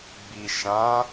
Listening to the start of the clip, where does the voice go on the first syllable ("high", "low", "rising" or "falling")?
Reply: low